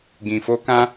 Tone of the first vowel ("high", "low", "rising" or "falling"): low